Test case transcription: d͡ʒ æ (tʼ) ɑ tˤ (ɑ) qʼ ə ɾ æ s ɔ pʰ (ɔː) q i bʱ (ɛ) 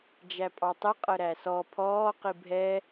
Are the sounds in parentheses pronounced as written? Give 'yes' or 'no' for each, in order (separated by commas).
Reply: no, no, yes, yes